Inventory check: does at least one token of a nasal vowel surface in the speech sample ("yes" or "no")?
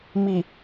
no